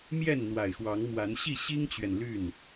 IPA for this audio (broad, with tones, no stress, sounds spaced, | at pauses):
m j ɛ˥˨ n n̪ w a˨˩ ɪ̯ x w ɑ˨˦ ŋ m w a˨˦ n ɕ i˥˨ ɕ i˦ ŋ t͡ɕ ɥ ɛ˨ n l y˥˨ n